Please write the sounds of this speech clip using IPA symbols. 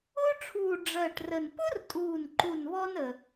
ʊː˥ ʈ͡ʂʰ uː˨˩ ɖ͡ʐ ɜ˨˩ ʈ r ə˨˩ n p ʊ˥ r tʼ uː˨˩ n ǃ u˨˩ n β ɔ˥ n ə˨˩

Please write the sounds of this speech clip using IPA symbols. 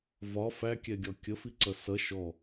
v ɒ f æ kʲ ɛ ɡʲ ɒ kʲ ə f i ǀ ʌ s ʌ ʃ ɔ

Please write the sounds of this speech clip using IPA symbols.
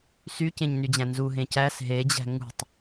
s y c ẽ ɲ n y d͡ʑ æ̃ n z u ɦ ẽ c æ s ɦ e d͡ʑ æ̤ ŋ ṳ tˤ

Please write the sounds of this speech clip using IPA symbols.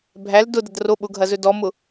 bʱ æ l d ʊ d ɐ d r o ɓ ʊ ɡʱ ɐ z ɵ d ɔ m ʊ

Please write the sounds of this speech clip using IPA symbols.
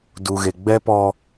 d u˨ ɣ e˨ ɡ͡b ɛ˦ p ɔ˦

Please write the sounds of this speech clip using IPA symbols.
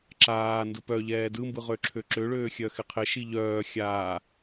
ǁ aː n d ɯ p œ ʎ ɛː d ɯ m b ɯ ʁ ø ǁʰ ø ǁ ø ɭ øː xʲ œ x ɪ qʰ ɪ ʃ i ʎ œː xʲ a

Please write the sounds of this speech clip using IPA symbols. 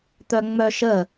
t̪ œ ŋ͡m œ ʃ ə

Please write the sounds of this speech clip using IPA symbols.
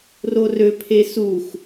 r o r ø pʰ e s u x

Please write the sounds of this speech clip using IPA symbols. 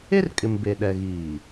e˦ r kʼ ɪ˨ m b e˨ ɗ ɛ˨ ɣ iː˨

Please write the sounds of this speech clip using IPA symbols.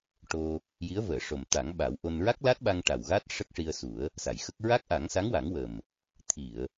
ʈ o˧ | j i˧˥ ə̯ v əː˨˩˨ ʂ o˨˩ m t̪ a˨˩˦ ŋ ɓ a˨˩˦ w ʔ o˧ n ɹ a˦˥ k̚ l a˦˥ t̚ ɓ a˧ ŋ ʈ a˨˩ w ɣ a˦˥ t̚ ʂ ə˦˥ k̚ ʂ i˧ ə̯ s u˨˩˦ ə̯ | s a˨˩˨ j x ə˦˥ k̚ ɹ a˦˥ k̚ ʔ a˨˩˦ ŋ s a˧˥ ŋ w a˨˩˦ ŋ w ə˨˩ m | t̪ʰ i˨˩˨ ə̯

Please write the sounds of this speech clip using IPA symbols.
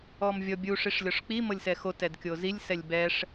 ɔ m vʲ ɔ bʲ u ʂ i ʂ lʲ ɔ ʂ k͡p i m ɤ lʲ s ɛ x o t ɛ d kʲ o z i lʲ s ɛ lʲ b ɛ ʂ

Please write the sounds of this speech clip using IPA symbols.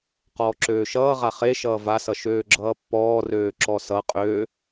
q ɔː ǁ øː ʃ ʌː ʁ a χ e ʃ ʌː v a s ʌ ʃ øː ɡ͡ǁ ʌː pː ɔː r øː ǁ ɔ s ʌ qʼ øː

